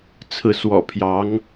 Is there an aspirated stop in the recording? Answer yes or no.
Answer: yes